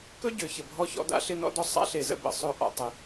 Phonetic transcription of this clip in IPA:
kɵ˥ɟø˩ çə˩bʱɔ˧çɔ̰˧da̰˧ ɬɪ˧nɔ̰˧dɔ˧ sˤa̰˥ɬe˩zə̰˧ bə̰˩sˤɵ˧ ʔɔ̰˩tˤɪ˩

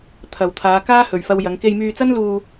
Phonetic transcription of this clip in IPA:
t̪ʰɐ˨wt̪ʰaː˨˧ kaː˥hɵ˨ɥfɐ˧w jɐ˨˧ŋke˧jmyː˧t͡sɐ˥n luː˧

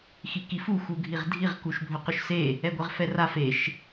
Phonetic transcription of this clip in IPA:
xikifu xuɡʱiʁdʱiʁ kuʃbʱɵqɵʃse | ɛɡʷɛʁfɛra feʃ

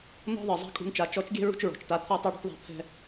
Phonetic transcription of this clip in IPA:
n̪ɔ̤˥ðˤɯ˩ zˤa̤˧ kʼṳ˧nt͡ʃa˩˧ t͡ʃɔ˧˥t͡ʃɡʲɛ̤˥ ɹṳ˥t͡ʃɹɔ̤˩t͡ʃta˧˥ t̪ʰɔ˥tˤɤ˥ɽṳ˧˥ʈðˤa̤˧ pʰɛ̤˥

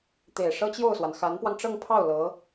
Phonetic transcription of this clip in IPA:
t̪e˨˩ɪ̯ʂɤ˥t͡ɕjo˥˩ʊ̯swa˩n xa˧˥npwɑ˧ŋʈ͡ʂɤ˥˧ŋpʰɑ˥˩ʊ̯ lɤ˧˥

